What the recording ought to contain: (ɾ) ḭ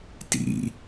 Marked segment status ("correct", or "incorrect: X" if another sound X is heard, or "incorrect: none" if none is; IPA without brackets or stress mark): incorrect: t